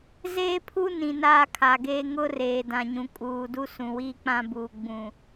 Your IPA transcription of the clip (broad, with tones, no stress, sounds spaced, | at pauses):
z eː˦ pʰ u˦ n ĩ˨ n aː˦ kʰ a˨ ɡ eː˦ ŋ ʊ˦ r eː˨ d ã˨ ɲ ũ˨ kʼ uː˨ d u˦ s ũ˨ w iː˦ k͡p ã˦ b uː˨ ɡ͡b ũ˨